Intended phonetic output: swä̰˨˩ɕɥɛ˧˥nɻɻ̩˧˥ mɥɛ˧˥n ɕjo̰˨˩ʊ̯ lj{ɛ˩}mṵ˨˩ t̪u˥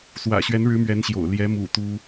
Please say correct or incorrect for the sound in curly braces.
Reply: incorrect